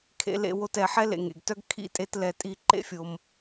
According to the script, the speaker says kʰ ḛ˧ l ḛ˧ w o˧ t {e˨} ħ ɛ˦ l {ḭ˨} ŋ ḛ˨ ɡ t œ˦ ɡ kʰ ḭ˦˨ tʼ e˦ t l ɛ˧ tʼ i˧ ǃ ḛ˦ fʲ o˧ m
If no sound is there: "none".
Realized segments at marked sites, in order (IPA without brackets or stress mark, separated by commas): ɛ˨, ḛ˨